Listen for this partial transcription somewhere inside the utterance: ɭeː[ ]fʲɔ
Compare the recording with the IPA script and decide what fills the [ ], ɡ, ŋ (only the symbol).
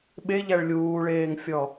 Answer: ŋ